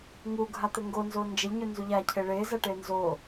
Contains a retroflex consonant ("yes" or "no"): yes